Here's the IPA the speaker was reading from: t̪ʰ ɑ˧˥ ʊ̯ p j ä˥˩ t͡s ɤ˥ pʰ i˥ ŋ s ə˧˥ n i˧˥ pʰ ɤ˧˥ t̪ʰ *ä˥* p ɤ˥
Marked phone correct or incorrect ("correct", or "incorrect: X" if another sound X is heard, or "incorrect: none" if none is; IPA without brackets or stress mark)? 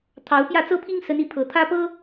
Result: correct